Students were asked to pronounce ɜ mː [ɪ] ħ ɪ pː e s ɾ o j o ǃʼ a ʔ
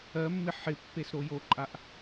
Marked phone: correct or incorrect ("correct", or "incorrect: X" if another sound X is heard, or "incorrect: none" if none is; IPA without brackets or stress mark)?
correct